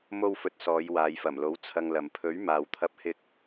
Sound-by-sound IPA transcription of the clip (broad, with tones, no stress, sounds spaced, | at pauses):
m o˧ w f ɵ˨ t̚ s ɔː˨˧ j w aː˨˧ j f ɐ˨˩ m l o˨˥ w t͡sʰ ɐ˧ ŋ l ɐ˨ m pʰ ɵ˨˥ ɥ m aː˨ w t̪ʰ ɐ˧ p̚ h ɪ˧ k̚